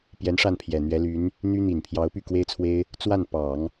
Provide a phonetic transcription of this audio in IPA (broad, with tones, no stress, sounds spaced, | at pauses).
p j ɛ˧˥ n ʂ a˥˩ n pʰ j ɛ˨˩ n̪ ɥ ɛ˧˥ l y˧˥ n | n̪ y˥ n̪ i˨˩ n pʰ j ɑ˧˥ ʊ̯ p y˥˩ k w e˥ ɪ̯ t͡sʰ w e˥ ɪ̯ | t͡s w a˥˩ n p ɑ˨˩˦ ŋ